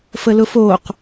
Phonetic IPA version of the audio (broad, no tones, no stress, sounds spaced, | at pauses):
f ə l ʊ f o q